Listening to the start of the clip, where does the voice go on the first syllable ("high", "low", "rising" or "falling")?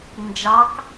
rising